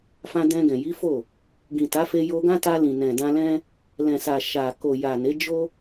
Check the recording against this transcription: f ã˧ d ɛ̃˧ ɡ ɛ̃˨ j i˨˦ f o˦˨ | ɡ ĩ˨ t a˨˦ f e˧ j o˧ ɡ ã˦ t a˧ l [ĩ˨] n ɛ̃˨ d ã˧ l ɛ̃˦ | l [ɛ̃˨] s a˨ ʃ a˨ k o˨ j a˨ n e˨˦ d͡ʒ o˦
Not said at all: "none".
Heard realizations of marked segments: ĩ˨, ɛ̃˨

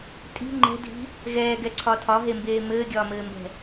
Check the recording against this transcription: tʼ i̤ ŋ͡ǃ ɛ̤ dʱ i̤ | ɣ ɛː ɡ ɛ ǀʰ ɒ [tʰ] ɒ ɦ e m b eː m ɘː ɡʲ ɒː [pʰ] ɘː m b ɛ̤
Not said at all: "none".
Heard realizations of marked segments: tʰ, m

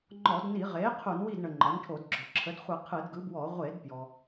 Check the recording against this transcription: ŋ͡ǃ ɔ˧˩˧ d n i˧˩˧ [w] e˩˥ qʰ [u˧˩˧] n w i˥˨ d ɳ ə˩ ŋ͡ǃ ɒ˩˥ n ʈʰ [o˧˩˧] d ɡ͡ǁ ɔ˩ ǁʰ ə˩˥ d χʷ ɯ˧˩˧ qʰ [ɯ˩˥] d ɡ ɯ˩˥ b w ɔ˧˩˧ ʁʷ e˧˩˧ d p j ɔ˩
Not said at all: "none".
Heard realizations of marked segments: ʁ, u˧˩˧, o˧˩˧, ɯ˧˩˧

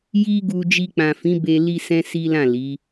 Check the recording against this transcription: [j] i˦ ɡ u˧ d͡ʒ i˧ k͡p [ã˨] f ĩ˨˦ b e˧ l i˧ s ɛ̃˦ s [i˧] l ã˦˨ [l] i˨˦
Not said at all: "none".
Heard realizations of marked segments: j, ã˨, i˦, l

